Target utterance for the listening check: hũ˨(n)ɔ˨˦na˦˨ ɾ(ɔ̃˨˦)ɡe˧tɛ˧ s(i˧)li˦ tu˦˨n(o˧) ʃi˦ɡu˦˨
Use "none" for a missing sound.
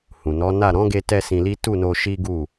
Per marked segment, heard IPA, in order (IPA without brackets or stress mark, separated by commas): n, ɔ̃˨˦, ĩ˧, o˧